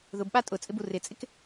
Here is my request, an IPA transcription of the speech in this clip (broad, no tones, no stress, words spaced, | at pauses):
ðʊbɓa tʼʊt͡sʼɪbu rɪt͡sʼɪk